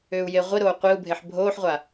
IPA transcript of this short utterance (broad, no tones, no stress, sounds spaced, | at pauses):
ʏː u̯ j e ʁʷ i ɾ oː qʷ i u̯ bʱ e ħ bʱ oː ħ ʁʷ a